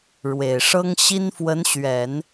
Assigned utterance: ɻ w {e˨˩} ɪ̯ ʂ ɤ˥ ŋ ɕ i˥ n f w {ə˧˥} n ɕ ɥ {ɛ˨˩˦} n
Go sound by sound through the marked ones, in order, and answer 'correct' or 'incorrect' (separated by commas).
correct, correct, correct